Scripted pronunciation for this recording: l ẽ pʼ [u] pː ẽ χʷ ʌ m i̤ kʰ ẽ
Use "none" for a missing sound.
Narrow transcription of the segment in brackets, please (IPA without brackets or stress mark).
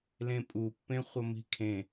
u